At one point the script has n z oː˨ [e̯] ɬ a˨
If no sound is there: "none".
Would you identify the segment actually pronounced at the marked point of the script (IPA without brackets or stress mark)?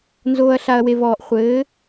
ɐ̯